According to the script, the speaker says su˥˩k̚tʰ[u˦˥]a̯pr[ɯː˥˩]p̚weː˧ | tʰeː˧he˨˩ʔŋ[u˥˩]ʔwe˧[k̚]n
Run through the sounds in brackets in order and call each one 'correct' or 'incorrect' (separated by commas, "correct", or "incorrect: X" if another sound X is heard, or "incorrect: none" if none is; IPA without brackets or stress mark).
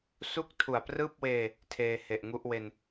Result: incorrect: u˨˩, correct, correct, incorrect: none